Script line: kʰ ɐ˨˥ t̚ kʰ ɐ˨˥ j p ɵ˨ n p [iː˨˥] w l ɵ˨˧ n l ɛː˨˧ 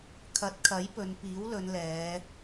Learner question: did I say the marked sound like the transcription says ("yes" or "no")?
yes